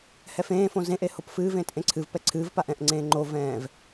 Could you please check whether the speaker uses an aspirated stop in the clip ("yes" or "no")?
yes